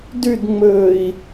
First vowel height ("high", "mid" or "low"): high